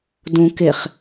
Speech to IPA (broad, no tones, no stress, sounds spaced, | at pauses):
d ũ k ɪ χ